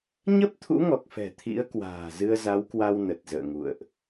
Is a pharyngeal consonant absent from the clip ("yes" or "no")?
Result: yes